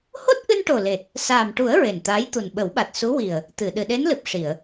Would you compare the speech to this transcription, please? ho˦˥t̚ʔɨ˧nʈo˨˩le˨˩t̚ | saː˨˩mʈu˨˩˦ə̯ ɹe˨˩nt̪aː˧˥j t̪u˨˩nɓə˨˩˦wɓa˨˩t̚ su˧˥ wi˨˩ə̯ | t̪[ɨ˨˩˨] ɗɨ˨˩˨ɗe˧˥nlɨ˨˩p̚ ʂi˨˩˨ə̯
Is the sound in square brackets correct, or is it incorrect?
correct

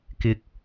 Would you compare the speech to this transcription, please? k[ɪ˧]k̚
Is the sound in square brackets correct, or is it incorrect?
correct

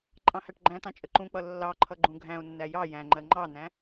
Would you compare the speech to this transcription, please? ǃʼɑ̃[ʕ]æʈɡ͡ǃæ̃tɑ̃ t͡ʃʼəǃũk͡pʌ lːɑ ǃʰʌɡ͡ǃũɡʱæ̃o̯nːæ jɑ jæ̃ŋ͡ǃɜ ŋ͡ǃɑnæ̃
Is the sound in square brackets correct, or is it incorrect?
incorrect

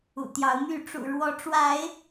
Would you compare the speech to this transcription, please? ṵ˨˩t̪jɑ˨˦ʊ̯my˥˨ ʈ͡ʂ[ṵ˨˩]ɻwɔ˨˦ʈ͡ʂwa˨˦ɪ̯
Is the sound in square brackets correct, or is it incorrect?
correct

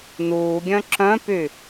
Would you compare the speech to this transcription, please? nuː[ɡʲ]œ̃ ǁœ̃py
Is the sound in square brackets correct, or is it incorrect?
correct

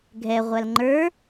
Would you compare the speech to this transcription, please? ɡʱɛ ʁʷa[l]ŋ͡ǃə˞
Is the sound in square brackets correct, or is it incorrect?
correct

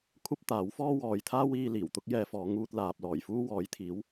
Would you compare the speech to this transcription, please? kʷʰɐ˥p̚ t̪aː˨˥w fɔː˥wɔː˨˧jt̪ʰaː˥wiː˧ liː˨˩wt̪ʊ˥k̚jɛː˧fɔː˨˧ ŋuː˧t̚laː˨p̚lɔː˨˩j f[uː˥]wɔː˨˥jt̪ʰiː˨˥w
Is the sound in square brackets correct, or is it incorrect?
correct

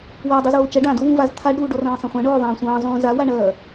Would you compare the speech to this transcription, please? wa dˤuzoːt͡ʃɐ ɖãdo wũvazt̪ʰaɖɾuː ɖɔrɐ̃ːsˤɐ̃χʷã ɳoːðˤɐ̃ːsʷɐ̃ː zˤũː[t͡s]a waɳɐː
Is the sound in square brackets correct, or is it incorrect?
incorrect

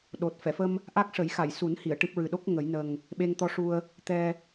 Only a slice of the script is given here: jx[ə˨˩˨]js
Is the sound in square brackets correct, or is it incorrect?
incorrect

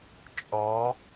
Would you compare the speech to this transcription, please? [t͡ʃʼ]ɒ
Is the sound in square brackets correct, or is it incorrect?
correct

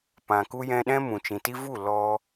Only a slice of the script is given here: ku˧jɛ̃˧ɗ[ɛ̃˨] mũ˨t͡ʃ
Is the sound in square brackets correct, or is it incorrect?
incorrect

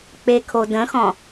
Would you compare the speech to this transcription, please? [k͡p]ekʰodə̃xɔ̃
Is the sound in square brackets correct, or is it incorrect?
correct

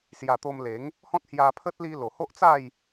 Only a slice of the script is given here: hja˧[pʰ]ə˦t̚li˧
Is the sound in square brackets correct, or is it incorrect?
correct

